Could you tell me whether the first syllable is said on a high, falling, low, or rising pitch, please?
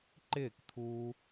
falling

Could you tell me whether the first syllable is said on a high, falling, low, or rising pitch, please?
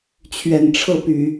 low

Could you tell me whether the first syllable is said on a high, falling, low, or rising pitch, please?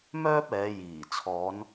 high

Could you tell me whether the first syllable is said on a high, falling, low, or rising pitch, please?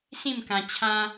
falling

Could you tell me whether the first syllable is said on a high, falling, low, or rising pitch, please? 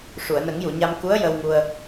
low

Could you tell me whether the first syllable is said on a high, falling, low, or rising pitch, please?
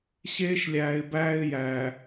high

